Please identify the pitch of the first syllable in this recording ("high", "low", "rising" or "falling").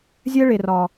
high